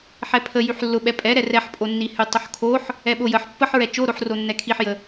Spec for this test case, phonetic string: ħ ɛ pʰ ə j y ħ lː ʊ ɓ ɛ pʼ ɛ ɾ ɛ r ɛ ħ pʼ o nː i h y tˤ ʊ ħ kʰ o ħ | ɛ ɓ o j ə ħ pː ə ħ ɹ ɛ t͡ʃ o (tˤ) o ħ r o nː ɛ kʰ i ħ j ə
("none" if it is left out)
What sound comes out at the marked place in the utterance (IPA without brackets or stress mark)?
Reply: ɾ